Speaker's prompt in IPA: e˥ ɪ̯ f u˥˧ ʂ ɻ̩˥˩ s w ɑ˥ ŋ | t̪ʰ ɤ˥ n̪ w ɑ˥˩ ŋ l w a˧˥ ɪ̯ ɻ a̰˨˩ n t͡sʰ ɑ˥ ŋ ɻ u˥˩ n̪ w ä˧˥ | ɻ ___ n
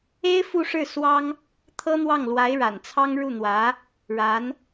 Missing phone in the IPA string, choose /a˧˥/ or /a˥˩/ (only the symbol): a˧˥